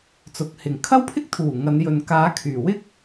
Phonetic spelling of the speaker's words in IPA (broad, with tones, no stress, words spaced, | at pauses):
t͡sʊ˨˥k̚hɪ˨˩ŋ kʰɐ˥wpʰɪ˥k̚t̪ʰuː˨˩ ŋɐ˨˧njɵ˨n kaː˨˧kʰyː˨˩wɪ˥k̚